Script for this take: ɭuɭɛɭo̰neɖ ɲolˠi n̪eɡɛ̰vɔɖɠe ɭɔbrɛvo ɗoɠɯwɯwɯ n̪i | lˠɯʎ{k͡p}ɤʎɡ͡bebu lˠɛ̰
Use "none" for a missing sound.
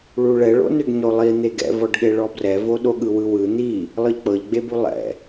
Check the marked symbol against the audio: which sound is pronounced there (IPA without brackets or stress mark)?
k͡p